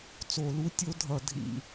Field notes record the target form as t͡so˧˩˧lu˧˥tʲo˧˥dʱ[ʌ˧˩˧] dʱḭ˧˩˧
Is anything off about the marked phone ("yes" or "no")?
no